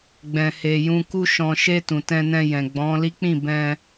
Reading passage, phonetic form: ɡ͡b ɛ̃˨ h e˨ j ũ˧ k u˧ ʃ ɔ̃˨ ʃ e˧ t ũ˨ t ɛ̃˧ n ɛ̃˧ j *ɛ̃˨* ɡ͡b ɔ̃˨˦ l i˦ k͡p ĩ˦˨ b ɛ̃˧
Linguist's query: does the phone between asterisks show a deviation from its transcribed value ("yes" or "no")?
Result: no